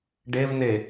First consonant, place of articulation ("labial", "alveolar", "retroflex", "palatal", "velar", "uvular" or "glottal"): retroflex